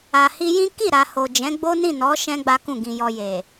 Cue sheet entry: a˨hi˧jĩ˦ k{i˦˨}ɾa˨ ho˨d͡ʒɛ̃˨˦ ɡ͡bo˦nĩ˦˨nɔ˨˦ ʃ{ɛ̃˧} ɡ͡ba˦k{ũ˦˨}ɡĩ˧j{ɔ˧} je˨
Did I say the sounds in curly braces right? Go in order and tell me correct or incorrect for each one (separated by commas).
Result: correct, incorrect, correct, correct